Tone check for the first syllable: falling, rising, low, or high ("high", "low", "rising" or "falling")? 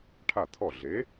falling